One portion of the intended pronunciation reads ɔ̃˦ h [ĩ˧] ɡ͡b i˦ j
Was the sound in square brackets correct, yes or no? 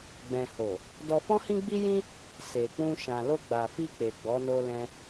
no